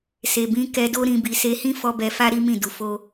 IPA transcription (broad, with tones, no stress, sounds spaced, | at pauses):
s e˨ b ĩ˧ k ɛ˧ d o˦ ɾ ĩ˧ b i˧ s e˧ h ĩ˦ f ɔ˧ b ɛ˧ f a˦ ɾ i˦ m ĩ˦˨ d u˧ f o˦